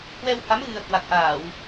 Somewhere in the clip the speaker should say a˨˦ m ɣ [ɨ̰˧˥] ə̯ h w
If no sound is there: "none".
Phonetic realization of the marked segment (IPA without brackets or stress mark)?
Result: ɨ˨˩